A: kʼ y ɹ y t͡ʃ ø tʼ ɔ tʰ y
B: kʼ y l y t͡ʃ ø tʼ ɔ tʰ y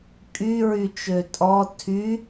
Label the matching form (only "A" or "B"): A